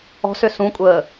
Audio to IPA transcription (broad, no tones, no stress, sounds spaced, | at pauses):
ɔ̤ s ʏ s ũ kʷʼ əː